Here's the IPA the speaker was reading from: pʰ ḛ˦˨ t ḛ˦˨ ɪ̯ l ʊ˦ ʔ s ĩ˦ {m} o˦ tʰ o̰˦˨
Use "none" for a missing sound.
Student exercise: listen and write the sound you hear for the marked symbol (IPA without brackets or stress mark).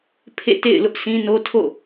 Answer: n